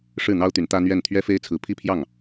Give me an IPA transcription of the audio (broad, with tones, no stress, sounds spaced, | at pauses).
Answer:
ʂ ɻ̩˥˩ n̪ ɑ˥ ʊ̯ t̪ y˧˥ n t̪ ä˥ n̪ ɥ ɛ˥˩ n t̪ʰ ɥ ɛ˥ f e˥ ɪ̯ t͡sʰ ɹ̩˧˥ pʰ i˥ pʰ j ɑ˥˩ ŋ